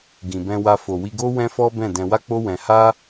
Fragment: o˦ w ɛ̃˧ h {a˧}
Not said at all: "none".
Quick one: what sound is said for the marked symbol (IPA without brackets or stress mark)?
a˦